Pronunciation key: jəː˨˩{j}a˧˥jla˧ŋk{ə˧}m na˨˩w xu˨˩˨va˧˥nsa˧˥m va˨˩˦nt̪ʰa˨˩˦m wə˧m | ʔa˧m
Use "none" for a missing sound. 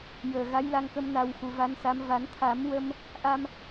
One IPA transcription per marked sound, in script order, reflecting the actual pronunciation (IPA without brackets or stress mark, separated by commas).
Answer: ɣ, ə˧